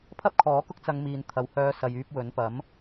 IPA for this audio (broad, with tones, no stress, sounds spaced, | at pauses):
pʰ ɐ˥ p̚ kʰ ɔː˨˥ k ʊ˥ k̚ t͡s ɐ˧ ŋ m iː˨ n t̪ʰ ɐ˨ w h œː˧ s ɐ˨ j yː˧ p̚ w ɵ˨˥ n p ɐ˨˥ m